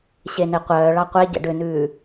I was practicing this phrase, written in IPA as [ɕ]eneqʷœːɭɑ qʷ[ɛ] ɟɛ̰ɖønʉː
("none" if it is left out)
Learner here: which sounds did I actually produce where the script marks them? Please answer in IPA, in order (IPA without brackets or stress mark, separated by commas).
ɕ, e